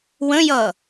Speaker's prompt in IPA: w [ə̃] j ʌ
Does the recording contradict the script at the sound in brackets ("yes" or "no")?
no